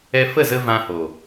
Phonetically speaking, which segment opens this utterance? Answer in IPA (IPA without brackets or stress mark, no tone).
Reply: ɛ